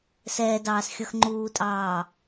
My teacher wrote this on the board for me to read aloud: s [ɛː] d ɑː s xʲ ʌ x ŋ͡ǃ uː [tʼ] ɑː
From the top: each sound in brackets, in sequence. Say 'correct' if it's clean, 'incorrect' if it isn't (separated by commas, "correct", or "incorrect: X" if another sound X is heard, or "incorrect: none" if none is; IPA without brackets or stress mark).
correct, correct